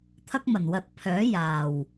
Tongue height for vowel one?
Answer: low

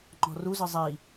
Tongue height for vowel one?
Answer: mid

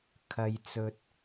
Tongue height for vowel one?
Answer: low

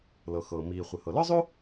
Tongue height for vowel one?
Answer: mid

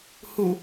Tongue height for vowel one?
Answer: high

